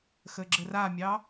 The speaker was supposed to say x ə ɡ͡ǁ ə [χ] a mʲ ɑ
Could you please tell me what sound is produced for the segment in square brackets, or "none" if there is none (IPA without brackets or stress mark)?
r